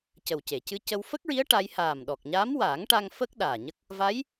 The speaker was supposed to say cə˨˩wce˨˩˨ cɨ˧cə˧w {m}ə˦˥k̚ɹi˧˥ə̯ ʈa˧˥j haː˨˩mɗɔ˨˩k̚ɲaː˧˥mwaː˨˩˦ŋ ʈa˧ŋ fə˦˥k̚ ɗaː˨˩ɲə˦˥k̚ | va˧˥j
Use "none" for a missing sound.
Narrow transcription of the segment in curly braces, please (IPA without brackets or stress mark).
f